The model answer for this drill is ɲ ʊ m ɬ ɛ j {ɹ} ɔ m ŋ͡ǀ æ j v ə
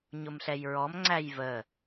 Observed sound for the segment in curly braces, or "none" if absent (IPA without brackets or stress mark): ɹ